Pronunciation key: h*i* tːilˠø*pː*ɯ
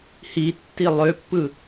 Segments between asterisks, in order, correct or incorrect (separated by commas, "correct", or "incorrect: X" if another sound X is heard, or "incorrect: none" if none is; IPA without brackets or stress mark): correct, correct